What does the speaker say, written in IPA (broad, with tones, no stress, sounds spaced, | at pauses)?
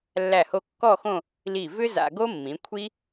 lː æ˧˩ h o˧ kː ɔ˥˧ x õ˥˧ | l i˧˩ v ʏ˥ z a̰˧ ɡ o˥ mː ĩ˩˧ kʷʰ i˥